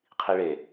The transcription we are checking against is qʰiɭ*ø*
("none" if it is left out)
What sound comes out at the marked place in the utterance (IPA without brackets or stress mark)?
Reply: e